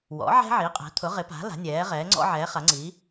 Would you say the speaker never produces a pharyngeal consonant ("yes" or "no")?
no